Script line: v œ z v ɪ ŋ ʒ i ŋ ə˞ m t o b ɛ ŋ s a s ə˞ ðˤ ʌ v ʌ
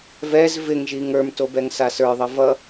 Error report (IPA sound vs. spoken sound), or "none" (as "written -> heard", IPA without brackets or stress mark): œ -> ɛ